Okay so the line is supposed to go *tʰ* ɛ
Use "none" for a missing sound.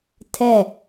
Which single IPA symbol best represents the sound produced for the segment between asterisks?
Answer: tʰ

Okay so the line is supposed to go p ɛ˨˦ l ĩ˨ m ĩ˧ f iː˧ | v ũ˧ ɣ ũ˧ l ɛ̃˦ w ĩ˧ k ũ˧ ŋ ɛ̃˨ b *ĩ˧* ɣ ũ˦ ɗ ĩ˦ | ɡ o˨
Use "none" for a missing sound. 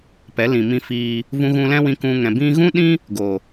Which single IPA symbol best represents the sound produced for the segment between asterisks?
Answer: ĩ˧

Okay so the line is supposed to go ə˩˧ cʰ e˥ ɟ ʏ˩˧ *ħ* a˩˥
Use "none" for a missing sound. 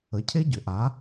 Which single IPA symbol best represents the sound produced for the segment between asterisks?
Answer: ʔ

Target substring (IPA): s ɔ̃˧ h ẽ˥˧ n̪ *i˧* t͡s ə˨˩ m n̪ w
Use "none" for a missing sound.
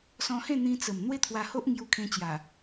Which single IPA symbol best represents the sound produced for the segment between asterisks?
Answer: ĩ˧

